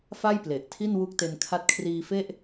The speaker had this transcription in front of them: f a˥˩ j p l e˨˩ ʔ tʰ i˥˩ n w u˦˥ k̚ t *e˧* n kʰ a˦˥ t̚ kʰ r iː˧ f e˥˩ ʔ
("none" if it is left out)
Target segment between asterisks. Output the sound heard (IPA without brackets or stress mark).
e˧